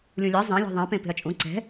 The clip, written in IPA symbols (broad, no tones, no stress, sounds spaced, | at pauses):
lʲ ũ lʲ e zˤ ẽ lʲ ɔ̤ ðˤ ẽ p ẽ p e̤ ɐ̯ t͡ʃʼ ũ ǀ ɛ̤